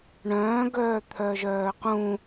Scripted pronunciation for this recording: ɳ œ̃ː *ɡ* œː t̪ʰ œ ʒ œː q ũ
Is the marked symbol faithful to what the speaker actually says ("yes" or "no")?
yes